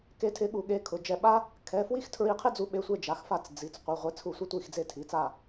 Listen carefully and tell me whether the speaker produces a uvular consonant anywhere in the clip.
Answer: yes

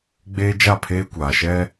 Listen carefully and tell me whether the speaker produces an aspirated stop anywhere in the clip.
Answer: yes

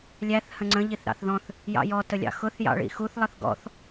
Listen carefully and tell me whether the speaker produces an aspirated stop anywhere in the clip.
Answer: no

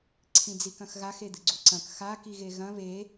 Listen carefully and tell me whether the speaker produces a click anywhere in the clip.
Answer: yes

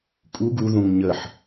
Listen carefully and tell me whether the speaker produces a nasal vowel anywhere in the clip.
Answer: yes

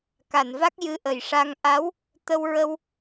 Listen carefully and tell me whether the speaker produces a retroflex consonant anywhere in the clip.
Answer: yes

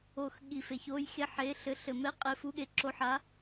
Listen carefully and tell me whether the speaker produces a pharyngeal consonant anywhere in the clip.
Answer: yes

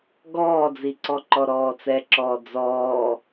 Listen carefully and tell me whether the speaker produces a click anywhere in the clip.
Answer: yes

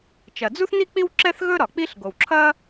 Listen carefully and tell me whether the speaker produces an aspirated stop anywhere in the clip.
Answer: yes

